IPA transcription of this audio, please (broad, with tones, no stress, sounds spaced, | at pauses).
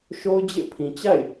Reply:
ʃ o˦ ʊ̯ d͡ʑ ḛ˦˨ pʰ ĩ˨ t͡ɕ a̰˦˨ ɪ̯